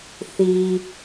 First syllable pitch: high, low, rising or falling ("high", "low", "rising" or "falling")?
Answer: low